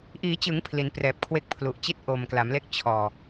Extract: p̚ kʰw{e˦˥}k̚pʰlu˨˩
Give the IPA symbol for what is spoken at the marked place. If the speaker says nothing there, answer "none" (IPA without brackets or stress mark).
e˦˥